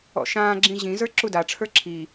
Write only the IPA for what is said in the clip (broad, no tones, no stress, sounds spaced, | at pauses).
ɔ̰ ʃ ãː ɡ͡ǁ ĩ ʑ ĩ z ə˞ ǁ u d a ʈ͡ʂʰ ə˞ ǁʰ i